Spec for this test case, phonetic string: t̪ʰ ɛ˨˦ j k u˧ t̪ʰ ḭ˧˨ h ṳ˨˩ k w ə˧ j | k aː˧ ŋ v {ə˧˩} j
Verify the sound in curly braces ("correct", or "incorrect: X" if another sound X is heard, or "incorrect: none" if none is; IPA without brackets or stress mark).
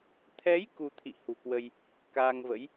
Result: incorrect: ə̰˧˥